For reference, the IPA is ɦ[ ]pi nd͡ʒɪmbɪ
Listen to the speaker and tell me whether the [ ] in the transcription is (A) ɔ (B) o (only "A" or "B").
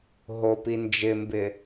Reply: B